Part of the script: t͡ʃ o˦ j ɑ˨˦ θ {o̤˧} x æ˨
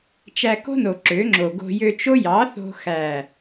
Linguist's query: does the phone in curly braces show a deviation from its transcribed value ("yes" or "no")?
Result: no